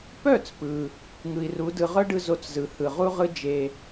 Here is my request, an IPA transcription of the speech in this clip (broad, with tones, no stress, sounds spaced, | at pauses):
p œ˥˩ t͡s p ɯ˩ | ŋ ɯ˩ i̯ r u˩˥ d ɯ˧ ʁ œ˥ ɖ ɯ˧ z o˧ t͡s z ɯ˩ h ɯ˩ ʁ u˥ ʁ ɯ˥ d͡ʒ e˧